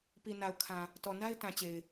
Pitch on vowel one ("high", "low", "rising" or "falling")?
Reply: low